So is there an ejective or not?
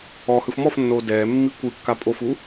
yes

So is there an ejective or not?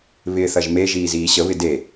no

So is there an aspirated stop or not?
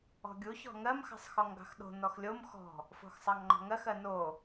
no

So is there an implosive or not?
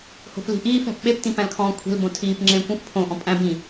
yes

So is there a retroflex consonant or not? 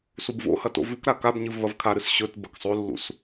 no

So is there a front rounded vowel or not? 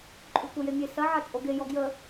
yes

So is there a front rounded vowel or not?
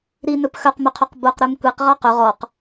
yes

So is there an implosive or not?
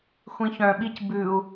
yes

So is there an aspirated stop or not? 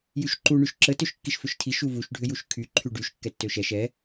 yes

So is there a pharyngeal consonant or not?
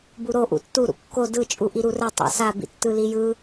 no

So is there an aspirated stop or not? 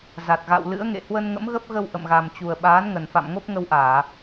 no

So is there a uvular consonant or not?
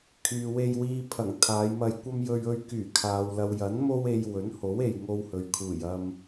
no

